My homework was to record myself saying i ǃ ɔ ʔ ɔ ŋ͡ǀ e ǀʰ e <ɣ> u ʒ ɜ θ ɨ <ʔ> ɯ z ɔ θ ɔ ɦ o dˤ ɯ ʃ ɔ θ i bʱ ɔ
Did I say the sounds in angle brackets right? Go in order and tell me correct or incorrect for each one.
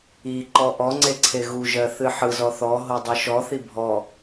correct, incorrect: ħ

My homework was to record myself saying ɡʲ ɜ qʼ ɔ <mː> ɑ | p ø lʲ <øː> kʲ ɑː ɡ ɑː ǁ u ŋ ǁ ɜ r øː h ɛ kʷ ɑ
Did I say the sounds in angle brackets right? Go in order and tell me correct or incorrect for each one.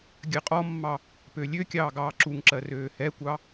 correct, incorrect: ø

